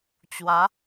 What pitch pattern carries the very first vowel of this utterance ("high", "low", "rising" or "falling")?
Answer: rising